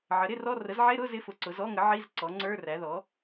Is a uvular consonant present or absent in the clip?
absent